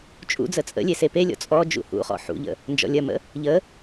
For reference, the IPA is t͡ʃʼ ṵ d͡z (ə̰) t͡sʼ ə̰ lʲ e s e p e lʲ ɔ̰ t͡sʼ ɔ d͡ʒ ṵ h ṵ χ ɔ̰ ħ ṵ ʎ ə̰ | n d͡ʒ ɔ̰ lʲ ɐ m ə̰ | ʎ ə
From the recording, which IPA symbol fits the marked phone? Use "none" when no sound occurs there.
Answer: ə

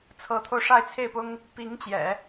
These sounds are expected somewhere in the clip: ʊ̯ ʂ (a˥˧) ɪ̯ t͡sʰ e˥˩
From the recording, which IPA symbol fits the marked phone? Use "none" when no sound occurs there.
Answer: a˥˧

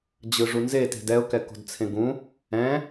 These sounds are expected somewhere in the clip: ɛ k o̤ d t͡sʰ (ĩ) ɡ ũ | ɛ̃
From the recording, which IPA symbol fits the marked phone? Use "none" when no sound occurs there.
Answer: ẽ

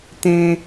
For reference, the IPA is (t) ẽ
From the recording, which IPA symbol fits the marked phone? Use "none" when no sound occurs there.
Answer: t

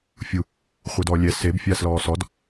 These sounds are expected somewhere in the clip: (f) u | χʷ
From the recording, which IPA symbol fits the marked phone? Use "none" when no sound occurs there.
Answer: fʲ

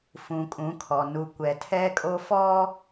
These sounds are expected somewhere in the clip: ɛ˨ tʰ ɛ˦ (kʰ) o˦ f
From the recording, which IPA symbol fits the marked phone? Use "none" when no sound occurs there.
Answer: kʼ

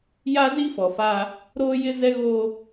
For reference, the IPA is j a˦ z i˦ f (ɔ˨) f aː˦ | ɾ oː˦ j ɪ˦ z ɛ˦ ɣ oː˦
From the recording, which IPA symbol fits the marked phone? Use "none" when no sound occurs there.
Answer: ɔ˨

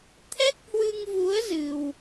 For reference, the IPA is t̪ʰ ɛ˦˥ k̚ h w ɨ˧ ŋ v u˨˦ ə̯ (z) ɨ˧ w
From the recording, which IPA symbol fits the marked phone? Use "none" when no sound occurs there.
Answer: z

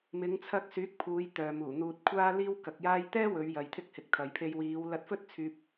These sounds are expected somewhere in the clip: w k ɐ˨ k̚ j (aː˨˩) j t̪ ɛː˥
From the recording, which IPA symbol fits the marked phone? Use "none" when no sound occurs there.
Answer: aː˧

